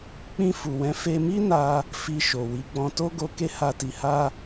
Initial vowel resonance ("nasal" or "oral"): nasal